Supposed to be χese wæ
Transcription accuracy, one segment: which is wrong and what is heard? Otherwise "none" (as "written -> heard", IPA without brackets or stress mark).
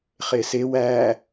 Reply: none